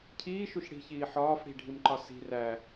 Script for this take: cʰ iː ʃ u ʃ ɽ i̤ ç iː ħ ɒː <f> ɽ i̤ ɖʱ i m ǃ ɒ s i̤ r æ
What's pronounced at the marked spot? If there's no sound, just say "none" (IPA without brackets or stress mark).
f